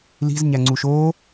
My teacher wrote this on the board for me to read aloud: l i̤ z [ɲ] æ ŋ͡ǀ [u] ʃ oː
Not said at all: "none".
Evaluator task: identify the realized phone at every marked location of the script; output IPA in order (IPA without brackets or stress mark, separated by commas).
ɲ, u